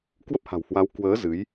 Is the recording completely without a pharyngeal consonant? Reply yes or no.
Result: yes